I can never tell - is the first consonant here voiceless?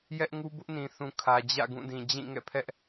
no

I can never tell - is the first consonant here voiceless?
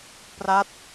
yes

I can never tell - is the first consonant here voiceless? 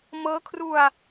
no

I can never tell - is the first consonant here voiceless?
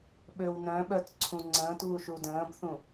no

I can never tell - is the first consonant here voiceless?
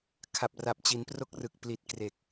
yes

